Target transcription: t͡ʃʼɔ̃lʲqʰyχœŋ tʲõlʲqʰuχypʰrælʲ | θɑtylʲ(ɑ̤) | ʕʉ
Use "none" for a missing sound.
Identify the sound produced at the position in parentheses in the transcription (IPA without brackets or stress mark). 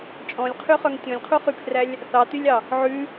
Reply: ɑ